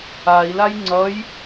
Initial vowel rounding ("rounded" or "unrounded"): unrounded